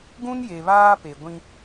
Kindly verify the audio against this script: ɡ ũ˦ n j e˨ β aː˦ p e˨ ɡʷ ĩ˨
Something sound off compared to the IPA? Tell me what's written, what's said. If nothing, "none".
ĩ˨ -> ĩ˦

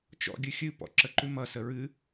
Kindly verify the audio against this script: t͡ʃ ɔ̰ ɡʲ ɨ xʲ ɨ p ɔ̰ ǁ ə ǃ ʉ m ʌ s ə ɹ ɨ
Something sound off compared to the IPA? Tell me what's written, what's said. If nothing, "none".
none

